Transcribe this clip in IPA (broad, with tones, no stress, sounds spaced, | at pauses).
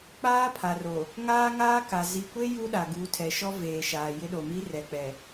k͡p aː˦ pʰ a˨ r o˨ | ŋ aː˦ ŋ aː˦ k a˨ z i˨ kʷ e˦ j u˦ ɗ a˨ ɡ u˨˦ tʰ ɛ˨ ʃ ɔ˦ v eː˨ ʃ aː˨ j ɪ˦ ɗ o˨ m i˦ r ɛ˨ k͡p ɛ˨